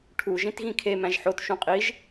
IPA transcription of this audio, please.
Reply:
ʈʰ u ʒ ĩ t ɣ ĩ kʰ e m æ̃ ʒ ħ o t ʃ ũ qʼ i ʒ

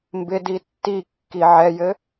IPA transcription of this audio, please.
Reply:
m b ɪ d i tː i kː i ʕ ɛ j ɘ

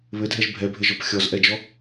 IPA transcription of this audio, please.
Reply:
β ɘ dʱ ɛ ʒ bʱ ɛ bʱ ɘ ʒ ɔ p xʲ ɔ z ʔ ɛ d͡ʒ ɔ

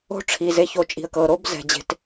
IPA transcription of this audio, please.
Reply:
o̤˥ ʈ͡ʂʰ i˧ z e˧ ç o˧ t͡ʃʼ i̤˧ ə̯ k ɤ˧ ɾ o˥ b z ɛ̤˧ d͡ʑ e̤˥ t

